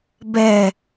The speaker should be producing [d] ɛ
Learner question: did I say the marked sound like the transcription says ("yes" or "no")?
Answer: no